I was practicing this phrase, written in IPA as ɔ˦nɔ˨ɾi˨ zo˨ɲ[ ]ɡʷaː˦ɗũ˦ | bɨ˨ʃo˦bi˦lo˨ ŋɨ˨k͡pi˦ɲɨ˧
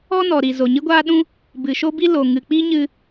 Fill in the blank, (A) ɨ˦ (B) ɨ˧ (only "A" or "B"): A